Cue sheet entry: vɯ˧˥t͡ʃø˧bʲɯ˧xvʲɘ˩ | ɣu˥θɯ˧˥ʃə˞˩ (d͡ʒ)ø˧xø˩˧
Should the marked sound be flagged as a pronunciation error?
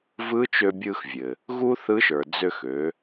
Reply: yes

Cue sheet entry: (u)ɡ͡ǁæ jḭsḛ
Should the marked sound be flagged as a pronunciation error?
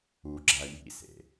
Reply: no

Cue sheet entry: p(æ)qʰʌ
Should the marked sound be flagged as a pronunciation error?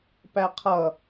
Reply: no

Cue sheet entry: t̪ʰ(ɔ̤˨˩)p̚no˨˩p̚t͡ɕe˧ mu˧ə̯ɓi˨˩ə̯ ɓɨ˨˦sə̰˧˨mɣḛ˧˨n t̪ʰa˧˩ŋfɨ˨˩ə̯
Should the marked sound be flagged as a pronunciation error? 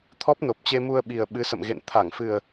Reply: yes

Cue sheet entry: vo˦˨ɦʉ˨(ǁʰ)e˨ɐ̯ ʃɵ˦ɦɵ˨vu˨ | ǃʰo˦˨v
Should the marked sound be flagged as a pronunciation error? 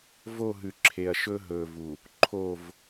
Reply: no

